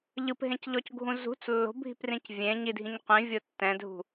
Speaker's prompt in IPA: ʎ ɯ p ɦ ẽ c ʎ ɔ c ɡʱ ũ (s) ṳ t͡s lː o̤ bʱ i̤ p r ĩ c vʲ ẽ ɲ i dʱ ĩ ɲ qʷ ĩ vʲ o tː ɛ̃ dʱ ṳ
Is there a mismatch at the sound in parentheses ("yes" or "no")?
yes